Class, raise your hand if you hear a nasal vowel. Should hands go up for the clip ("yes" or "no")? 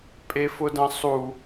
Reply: yes